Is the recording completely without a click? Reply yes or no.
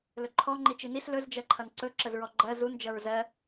no